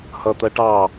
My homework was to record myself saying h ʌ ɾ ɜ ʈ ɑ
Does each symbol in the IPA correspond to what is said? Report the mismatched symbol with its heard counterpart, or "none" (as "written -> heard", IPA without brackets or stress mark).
ɾ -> t̪